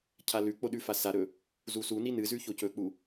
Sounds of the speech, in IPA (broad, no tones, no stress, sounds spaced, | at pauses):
cʰ a l ʉ k͡p o ɗ ʉ f a s a ɾ ɵ | z u s u n i n ɨ z ʉ ç o c ɵ k͡p u